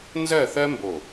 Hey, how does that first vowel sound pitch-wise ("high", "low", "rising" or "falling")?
falling